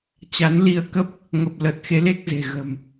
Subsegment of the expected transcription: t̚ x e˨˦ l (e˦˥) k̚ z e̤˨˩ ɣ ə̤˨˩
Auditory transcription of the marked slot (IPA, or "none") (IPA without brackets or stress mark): e˦˥